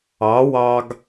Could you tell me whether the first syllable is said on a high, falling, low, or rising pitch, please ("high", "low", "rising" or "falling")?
rising